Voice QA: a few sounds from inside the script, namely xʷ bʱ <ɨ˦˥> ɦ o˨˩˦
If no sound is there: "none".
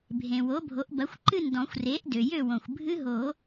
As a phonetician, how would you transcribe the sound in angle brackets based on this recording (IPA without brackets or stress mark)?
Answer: ɨ˦˥